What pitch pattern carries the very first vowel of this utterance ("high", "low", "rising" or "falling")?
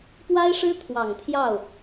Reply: high